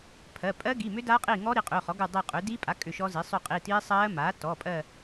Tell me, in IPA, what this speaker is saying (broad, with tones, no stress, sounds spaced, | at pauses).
pʰ ɜ˩˧˩ pʼ ɜ˦˥ ɡ i˩˧˩ m ʏ˦˥ d aː˦˥ qʼ iː˦˨ ŋ ɔ˦˥ ɾ i˩˥ qʼ ʏː˩˧˩ χ ɔ˩˥ ɡ u˦˨ dˤ i˦˨ qʼ ʏː˩˥ d iː˦˥ pʼ a˩˥ kʼ ʏ˦˨ ʃ ɔ˦˥ z i˩˥ sˤ ʏ˦˨ qʼ i˩˧˩ t iː˦˥ sˤ ɜː˦˥ m aː˩˥ t ɔ˩˧˩ pʼ ɜ˦˨